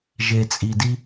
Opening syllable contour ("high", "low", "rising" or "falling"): low